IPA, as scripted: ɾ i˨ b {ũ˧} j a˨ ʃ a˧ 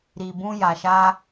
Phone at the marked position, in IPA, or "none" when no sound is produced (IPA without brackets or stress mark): ũ˧